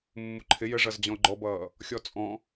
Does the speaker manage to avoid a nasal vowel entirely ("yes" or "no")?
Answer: no